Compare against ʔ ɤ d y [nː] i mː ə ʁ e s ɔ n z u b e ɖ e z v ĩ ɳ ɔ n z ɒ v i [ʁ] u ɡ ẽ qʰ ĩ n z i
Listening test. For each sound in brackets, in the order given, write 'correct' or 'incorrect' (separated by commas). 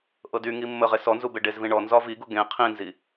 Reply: incorrect, incorrect